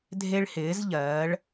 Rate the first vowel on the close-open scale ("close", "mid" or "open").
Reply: mid